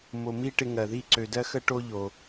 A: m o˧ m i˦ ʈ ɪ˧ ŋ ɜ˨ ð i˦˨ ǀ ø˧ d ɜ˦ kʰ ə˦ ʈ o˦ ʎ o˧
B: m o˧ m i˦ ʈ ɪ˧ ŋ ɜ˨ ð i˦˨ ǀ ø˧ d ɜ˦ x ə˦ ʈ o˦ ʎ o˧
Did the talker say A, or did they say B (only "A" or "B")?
B